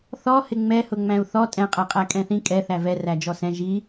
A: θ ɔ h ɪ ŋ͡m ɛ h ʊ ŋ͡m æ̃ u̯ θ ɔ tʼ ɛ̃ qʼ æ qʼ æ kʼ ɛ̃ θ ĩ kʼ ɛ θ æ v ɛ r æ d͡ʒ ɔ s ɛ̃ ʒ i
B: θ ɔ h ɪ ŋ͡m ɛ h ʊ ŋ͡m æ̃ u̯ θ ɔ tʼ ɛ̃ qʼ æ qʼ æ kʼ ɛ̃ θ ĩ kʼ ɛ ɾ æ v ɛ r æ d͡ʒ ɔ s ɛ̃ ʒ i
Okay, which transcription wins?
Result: A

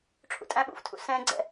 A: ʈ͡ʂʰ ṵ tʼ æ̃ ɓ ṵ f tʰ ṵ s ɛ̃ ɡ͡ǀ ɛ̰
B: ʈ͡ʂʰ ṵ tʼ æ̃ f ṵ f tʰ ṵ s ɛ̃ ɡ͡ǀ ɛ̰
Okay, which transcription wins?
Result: A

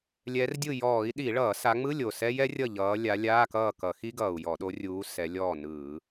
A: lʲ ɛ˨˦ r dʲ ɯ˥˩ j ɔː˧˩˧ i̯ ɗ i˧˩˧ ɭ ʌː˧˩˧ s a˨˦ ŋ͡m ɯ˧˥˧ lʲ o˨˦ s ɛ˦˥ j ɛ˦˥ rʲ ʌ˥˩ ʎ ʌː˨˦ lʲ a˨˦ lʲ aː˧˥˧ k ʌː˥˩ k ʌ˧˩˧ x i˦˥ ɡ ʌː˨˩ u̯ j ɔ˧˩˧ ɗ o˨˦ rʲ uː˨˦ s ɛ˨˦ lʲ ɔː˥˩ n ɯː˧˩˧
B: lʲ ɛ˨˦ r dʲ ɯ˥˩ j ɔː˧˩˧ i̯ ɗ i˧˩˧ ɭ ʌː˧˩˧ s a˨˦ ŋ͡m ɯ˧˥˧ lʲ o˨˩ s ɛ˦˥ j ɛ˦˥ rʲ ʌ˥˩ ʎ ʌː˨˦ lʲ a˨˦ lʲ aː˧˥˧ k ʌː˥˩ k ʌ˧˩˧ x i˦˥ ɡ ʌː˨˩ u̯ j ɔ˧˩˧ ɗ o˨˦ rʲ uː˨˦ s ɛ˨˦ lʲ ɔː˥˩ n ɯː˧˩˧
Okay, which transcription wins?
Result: B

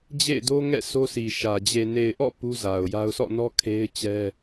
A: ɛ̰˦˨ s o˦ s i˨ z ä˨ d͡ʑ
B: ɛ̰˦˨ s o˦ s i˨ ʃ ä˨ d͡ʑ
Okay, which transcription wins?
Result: B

